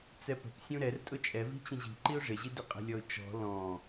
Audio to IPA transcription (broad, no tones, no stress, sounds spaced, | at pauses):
t͡s ɛ p ə̤ p sʲ ũ ɾ ɛ r tʼ ʊ t͡ʃʼ ɛ v i̤ t͡ɕ ə̃ ʑ i̤ ǃ i ʊ̯ ʐ ɪ ʑ i d ɪ qʼ ə̤ lʲ ɔ ʊ̯ t͡ʃ ɔ̤ l ɔ̃